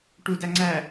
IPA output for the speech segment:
ʈ u d æ ŋ͡ǀ æ

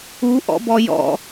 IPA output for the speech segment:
u ʔ ɔ̰ b ɔ j ɔ̰

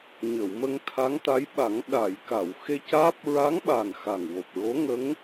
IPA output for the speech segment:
ɲ ə˨˩˨ w m ə˧ ŋ t̪ʰ a˧˥ ŋ t̪ a˧˥ j ɓ a˨˩˦ ŋ ɗ a˨˩˨ j k a˨˩˨ w x e˧ c aː˦˥ p̚ ɹ a˧˥ ŋ ɓ a˨˩ n x a˨˩ ŋ w o˨˩ p̚ ɹ o˧˥ ŋ ə˧˥ ŋ

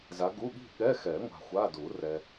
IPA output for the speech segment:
z a˨˦ ɡ u˧˥˧ ɠ i̤˥˧ ɠ ɛ˧˥˧ x ɛ˨˩˦ ŋʷ a̤˨ xʷ a˧˥˧ d u˨˩˦ r ɛ˨

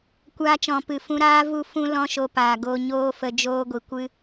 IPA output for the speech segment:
kʷ aː˧ t͡ʃ ɔ̃˨ p ɨ˨ f ũ˧ ɾ aː˦ v u˦˨ f ũ˦ l ɔ̃˦ ʃ o˧ p aː˨ ɡ o˧ ɲ oː˦ f ə˧ d͡ʒ oː˦ ɡʷ i˨ kʷ ɨ˧

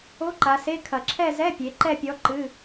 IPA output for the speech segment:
o˧˥˧ ǃ a˩˧ s e˧˥˧ kʰ ɐ˨˩ ǁʰ ɛ˥˧ z ɛ˧˥˧ pʲ e˩˧ ǃ ɛ˥˧ pʲ ɔ˧˥ ǃ ɨ˧˥˧

